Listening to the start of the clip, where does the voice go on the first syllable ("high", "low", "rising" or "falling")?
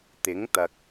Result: rising